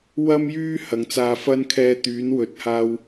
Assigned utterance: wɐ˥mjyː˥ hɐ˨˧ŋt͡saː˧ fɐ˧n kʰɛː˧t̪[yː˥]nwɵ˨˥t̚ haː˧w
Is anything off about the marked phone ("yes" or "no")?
yes